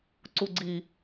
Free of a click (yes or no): no